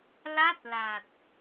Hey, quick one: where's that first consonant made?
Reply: tongue tip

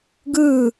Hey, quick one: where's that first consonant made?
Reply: velum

